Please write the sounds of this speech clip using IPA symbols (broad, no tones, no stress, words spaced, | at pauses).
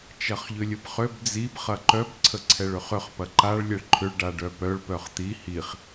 t͡ʃɐχʎʏlʲəbχøb d͡zib χɐǃœb ǀʰəǀʰɛɭøχʏχ pɐǃaɭ lʲɛɭǃʰʏɭ ɖaɖœpœɭ pœχt̪i hiχ